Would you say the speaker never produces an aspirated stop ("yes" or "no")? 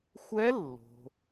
yes